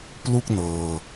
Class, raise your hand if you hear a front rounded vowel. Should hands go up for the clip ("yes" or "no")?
no